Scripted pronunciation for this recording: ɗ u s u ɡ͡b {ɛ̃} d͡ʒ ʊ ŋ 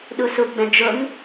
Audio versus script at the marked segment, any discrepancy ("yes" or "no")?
no